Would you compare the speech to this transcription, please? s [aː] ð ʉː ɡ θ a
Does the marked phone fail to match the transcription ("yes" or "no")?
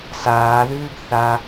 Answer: no